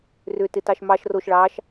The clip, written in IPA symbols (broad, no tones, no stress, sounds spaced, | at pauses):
r ʏ t ɪ t ɑ ʃ m ɑ ʃ r o ʃ ɭ ɑ ʃ